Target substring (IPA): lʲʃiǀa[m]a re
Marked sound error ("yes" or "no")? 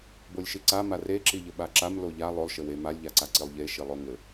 no